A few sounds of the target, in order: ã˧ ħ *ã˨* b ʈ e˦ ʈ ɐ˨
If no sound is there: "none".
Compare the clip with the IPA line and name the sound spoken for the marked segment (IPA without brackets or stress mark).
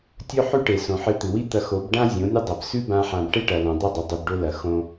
ã˧